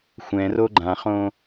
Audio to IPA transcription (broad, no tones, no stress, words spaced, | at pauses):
xʷɛ̃ro ɡ͡ǃãχõ